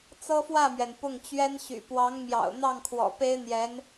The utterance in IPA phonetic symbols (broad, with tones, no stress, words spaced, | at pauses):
t͡sɤ˥fwä˥˩mɥɛ˩n pʊ˥˩ŋt͡ɕɥɛ˥nɕy̰˨˩ pwɑ˧˥ŋmjɑ̰˨˩ʊ̯n̪ɑ˥˩ŋkʰwɔ̰˨˩ pe˥ɪ̯n̪jɛ˧˥n